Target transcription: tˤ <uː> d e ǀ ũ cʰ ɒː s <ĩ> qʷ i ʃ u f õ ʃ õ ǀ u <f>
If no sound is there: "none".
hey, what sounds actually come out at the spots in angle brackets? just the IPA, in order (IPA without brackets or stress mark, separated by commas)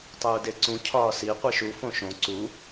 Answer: uː, i, none